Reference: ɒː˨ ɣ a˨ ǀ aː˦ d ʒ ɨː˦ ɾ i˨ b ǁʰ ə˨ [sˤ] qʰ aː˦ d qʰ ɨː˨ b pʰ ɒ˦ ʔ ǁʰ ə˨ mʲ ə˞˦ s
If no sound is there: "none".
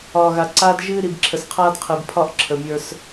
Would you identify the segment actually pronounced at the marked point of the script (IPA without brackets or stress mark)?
s